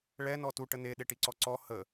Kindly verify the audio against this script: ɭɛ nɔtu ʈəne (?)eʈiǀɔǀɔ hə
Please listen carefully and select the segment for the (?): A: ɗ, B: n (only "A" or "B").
A